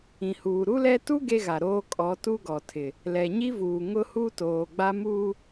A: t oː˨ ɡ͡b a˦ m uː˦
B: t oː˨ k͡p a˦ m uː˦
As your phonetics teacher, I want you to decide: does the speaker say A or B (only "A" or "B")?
A